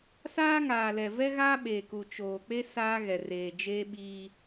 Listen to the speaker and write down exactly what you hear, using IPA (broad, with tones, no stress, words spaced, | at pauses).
saː˦ŋaː˨lɛ˨vɛ˦ ɣaː˦ɓe˨ku˨ t͡ʃoː˨k͡pe˦ saː˦ɣɛ˨ reː˨d͡ʒeː˦ɓiː˦